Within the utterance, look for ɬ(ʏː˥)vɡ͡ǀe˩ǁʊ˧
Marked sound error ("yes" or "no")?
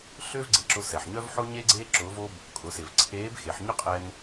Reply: no